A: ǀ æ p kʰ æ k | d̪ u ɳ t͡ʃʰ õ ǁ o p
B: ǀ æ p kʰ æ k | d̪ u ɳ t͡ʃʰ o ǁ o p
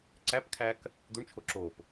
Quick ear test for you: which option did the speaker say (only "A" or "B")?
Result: B